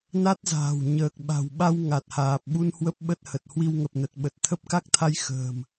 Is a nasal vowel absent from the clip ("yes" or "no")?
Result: yes